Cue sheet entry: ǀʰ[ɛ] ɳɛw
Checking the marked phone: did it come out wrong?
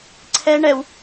no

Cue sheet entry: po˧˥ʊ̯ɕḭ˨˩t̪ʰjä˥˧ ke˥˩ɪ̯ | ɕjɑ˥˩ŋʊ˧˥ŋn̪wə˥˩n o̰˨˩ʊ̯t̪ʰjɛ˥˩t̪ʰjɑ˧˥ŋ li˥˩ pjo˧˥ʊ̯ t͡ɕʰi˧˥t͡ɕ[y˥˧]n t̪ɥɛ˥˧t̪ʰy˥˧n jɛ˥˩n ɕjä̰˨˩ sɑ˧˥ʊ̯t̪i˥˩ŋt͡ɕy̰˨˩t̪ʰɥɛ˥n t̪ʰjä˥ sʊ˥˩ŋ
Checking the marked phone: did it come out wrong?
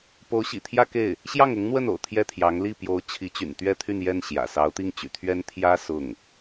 yes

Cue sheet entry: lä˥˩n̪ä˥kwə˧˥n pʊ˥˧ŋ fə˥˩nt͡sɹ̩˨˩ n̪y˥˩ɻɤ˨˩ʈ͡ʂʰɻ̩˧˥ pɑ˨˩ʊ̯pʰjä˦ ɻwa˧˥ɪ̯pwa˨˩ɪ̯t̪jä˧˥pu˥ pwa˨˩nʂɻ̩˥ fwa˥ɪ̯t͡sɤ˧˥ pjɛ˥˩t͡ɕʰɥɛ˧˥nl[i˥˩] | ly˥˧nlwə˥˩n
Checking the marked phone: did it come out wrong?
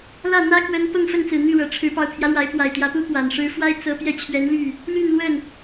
yes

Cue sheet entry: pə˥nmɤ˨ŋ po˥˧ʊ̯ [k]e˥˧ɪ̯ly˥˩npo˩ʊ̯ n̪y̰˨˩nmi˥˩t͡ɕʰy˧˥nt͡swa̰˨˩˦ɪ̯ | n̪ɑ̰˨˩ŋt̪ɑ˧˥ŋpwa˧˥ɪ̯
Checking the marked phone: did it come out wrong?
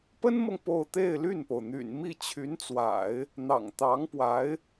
yes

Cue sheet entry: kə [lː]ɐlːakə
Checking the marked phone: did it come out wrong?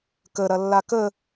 yes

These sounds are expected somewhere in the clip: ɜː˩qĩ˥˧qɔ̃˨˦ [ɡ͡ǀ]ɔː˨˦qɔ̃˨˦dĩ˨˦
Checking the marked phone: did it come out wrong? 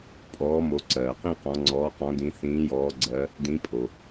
yes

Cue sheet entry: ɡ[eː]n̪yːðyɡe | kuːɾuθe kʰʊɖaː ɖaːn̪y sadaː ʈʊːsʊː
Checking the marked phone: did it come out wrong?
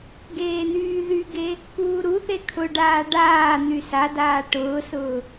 no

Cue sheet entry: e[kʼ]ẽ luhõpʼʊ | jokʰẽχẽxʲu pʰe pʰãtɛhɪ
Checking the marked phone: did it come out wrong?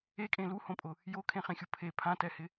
no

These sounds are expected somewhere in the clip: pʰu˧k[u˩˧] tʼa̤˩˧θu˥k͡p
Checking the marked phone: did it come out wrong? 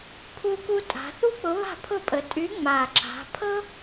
yes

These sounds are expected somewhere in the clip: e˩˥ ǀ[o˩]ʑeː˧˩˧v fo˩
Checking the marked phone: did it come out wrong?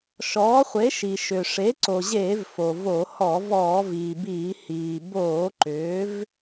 no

